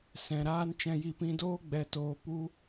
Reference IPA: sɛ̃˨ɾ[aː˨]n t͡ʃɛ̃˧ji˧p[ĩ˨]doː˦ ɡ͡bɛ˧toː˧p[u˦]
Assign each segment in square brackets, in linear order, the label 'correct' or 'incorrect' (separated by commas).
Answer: incorrect, incorrect, correct